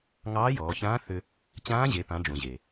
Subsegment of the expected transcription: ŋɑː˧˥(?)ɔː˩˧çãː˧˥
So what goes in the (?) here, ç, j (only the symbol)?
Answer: j